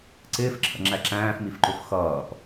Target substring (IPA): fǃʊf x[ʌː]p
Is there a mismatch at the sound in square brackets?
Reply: no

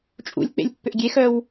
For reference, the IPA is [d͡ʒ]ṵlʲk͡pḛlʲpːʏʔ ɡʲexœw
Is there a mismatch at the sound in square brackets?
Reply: yes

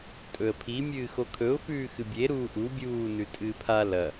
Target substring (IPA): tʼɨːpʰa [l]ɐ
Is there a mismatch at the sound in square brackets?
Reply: no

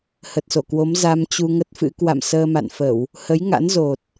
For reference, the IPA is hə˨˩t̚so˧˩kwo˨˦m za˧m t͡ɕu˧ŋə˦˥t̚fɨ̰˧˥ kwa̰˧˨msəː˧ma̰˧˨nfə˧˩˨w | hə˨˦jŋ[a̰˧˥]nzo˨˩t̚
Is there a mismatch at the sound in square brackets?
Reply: no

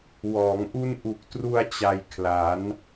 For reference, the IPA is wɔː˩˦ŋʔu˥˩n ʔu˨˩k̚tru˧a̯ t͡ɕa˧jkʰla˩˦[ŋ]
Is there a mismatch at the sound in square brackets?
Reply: yes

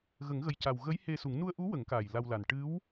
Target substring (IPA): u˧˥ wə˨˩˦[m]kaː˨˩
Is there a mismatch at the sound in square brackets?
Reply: yes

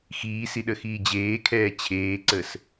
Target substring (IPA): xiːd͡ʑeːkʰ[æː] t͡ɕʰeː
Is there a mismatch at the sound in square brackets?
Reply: yes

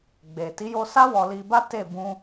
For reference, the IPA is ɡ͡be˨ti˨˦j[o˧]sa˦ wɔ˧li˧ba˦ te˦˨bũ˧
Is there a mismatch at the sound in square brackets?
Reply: no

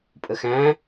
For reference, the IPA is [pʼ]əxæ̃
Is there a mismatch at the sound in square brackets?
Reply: no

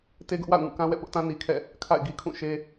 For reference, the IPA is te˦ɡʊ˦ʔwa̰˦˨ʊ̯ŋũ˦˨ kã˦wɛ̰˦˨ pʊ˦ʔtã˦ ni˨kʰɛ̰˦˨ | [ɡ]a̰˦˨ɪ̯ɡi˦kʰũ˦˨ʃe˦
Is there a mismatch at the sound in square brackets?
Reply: yes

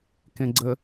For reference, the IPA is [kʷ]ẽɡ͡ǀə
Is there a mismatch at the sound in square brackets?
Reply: yes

